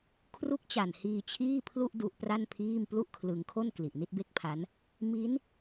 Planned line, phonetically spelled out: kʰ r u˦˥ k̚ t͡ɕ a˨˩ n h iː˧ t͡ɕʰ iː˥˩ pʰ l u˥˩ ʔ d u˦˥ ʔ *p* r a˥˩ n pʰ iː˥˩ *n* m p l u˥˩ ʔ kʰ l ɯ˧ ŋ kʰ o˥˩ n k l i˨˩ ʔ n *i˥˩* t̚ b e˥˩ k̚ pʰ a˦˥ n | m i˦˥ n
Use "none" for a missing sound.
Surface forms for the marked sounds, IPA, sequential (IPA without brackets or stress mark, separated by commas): p, none, i˥˩